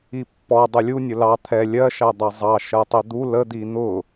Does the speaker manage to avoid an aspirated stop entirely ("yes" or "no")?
no